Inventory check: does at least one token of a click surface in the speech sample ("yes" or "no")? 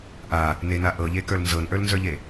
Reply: no